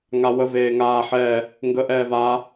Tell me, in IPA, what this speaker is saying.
ŋ a w ə v eː ŋ aː ħ ɛː | ŋ ɡ ə ʔ ɛː v aː

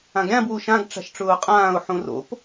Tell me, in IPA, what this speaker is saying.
ã ɡ ɾʲ ã b w u ʃ ã ɡ ʈ͡ʂ a̤ ʃ ʈ͡ʂ ʊː qʼ ãː ʊ̯ ħ ũ r o̰ p

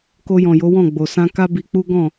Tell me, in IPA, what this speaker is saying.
k o˧ j ɔ̃˨ j o˨˦ w ɔ̃˦˨ ɡ͡b o˨ s ã˧ k a˦ b i˧ k͡p u˦ ɡ ɔ̃˦˨

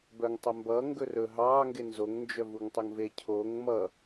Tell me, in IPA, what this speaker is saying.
b œ ŋ tˤ ɵ m b ʌ ŋ ɡ ɵ r ɵ ɦ ɑː ŋ ɡ e n z o ŋ n d͡ʒ œ v u ŋ tˤ o ŋ v e cʰ oː ŋ m ʌ

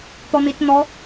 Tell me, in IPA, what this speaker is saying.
t̪ ɔ n̪ i t n̪ ɔ

